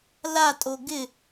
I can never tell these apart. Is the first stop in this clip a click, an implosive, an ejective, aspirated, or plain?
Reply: ejective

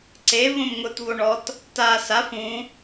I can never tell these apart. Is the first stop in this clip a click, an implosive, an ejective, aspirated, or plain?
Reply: click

